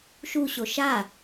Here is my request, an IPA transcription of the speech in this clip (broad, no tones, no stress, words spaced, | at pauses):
ʃu ɕoʃa